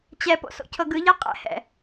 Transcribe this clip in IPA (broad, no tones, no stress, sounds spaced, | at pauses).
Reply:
t͡ɕ ɛ p o̰ s o̰ cʰ ɤ ɡ ɯ ʎ a qʼ ɛ̰ h ɛ̰